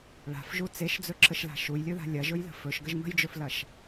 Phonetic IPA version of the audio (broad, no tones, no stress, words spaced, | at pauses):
ɭa̤fʒu t͡seʃd͡zɵǁəʃla̤ ʃujlʲɵða̤ lʲɐʒɵjlə̤ fɵʃɡəʒ mə̤jd͡ʒɵflɐʃ